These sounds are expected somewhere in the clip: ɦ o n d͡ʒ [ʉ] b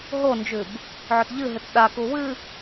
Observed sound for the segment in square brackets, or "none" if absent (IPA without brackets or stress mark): ʉ